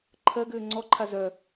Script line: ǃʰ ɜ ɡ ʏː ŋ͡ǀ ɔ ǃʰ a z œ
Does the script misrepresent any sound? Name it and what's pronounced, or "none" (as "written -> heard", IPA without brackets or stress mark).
none